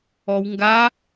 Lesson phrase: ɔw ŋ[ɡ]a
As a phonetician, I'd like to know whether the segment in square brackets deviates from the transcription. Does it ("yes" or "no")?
no